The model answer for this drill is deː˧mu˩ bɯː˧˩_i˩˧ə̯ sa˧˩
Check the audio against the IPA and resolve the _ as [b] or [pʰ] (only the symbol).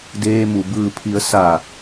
pʰ